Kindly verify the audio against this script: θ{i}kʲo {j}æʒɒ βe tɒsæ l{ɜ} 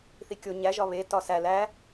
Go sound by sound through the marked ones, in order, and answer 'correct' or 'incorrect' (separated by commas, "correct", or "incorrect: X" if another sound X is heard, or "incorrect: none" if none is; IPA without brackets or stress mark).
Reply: correct, incorrect: ɲ, incorrect: æ